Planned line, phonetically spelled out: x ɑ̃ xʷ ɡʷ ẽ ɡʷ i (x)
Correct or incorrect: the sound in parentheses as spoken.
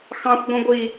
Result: incorrect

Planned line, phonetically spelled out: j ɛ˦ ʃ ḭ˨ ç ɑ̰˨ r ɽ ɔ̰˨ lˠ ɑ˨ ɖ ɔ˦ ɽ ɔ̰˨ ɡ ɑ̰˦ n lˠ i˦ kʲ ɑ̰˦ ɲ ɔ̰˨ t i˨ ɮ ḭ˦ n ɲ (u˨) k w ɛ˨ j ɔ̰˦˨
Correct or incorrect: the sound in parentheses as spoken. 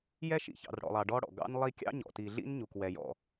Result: correct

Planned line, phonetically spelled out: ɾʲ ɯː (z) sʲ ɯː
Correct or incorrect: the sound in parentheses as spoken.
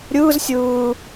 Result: correct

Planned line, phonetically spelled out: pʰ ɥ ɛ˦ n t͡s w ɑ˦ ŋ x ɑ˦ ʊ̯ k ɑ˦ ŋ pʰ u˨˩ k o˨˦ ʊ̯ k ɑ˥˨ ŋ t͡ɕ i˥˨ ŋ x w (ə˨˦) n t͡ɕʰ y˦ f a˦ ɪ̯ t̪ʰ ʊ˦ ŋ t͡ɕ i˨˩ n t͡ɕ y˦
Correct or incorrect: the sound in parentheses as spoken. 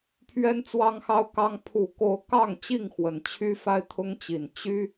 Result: incorrect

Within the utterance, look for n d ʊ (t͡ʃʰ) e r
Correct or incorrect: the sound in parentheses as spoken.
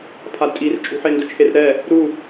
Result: correct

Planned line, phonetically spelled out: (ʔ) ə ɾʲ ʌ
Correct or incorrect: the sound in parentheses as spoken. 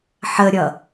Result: incorrect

